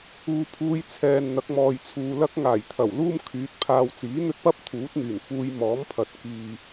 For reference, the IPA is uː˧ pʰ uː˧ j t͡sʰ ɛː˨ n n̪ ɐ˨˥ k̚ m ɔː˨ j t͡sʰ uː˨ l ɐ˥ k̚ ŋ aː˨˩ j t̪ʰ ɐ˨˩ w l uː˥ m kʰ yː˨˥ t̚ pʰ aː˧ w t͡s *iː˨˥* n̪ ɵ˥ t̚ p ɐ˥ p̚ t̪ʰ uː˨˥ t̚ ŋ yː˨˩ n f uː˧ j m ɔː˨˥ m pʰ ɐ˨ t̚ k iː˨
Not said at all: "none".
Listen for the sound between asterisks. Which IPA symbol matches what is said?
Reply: iː˨˥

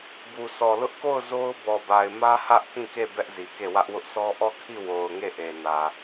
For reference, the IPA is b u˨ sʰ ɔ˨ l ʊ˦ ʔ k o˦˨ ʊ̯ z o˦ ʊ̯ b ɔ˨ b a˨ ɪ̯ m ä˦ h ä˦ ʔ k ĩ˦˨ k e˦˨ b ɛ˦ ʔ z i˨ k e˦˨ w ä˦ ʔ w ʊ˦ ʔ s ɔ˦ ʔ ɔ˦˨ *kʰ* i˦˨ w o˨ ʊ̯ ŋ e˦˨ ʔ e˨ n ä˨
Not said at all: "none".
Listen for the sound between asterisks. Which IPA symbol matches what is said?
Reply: kʰ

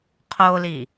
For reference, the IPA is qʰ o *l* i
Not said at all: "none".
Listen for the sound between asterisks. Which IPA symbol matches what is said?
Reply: l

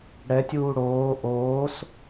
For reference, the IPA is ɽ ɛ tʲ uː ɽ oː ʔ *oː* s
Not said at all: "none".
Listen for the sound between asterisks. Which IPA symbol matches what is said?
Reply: oː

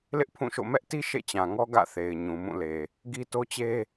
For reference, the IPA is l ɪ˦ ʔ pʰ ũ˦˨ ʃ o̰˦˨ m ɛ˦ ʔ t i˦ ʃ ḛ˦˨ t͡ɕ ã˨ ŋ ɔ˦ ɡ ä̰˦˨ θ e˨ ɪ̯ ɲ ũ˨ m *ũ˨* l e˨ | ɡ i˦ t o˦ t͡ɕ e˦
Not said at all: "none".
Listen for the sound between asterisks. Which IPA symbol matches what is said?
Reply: ũ˦˨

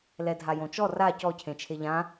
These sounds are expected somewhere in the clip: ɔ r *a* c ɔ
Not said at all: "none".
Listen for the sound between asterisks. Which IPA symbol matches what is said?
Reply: a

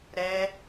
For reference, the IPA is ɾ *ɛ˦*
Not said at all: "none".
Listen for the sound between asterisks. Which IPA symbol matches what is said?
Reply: ɛ˦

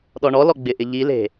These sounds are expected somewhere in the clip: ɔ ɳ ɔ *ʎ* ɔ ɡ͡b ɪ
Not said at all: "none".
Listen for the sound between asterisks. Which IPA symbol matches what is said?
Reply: l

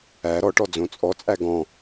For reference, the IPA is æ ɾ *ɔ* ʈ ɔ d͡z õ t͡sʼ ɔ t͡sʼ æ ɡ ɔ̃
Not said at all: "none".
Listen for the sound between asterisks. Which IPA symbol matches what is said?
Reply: ɔ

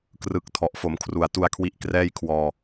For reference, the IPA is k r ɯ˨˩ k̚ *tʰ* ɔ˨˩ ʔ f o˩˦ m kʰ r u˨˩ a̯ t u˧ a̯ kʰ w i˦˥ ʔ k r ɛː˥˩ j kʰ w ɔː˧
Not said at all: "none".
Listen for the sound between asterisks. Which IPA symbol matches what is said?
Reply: tʰ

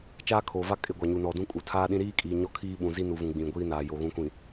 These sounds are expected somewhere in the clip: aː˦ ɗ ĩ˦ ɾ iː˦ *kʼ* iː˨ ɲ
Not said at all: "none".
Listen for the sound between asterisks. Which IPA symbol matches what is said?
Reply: kʼ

